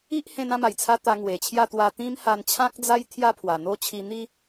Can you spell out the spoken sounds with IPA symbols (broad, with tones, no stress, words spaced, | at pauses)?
i˦ʔhẽ˧n ã˥˧ma˨˩jt͡sʰa˧ t̪a˧ŋwe˨˩t͡ɕʰja˥˧ t̪wa˧t̪ĩ˦m ha˧nt͡ɕʰã˦k̚d͡za˦j t̪ʰja˥˧pʰwa˨˩ n̪o˥˧ t͡ɕʰi˧n̪i˦